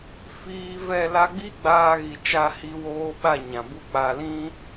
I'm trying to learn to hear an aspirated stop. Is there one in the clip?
no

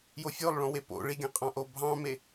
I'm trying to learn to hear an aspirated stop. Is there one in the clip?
no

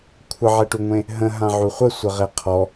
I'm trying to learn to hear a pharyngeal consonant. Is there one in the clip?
yes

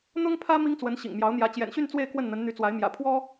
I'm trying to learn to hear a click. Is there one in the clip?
no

